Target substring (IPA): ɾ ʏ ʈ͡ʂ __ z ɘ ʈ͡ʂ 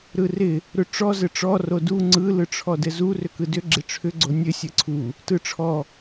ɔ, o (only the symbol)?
ɔ